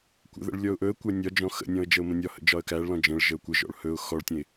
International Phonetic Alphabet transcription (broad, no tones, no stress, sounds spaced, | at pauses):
kʷ ə̰ ð ə̰ ɭ lʲ ɔ ʊ̯ ʔ ɵ ə̯ kʷ æ nʲ ɒ d͡ʒ ɔ̃ x ə̰ nʲ ɔ̃ ə̯ d͡ʒ ə ʊ̯ m ə̃ nʲ ɒ h ə̰ d͡ʒ ɒ ə̯ k æ ɭ l ɔ̃ d͡ʒ ə̃ ɭ ʒ ə ʊ̯ kʷ ə ʒ ɔ̰ ɭ h ɵ ʊ̯ x ɔ ɭ tʲ ə̃ ɪ̯